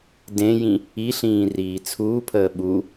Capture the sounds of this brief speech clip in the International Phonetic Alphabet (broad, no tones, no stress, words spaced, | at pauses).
dẽjĩ | iɬĩː riːt͡sʰuːpʰəː ɓu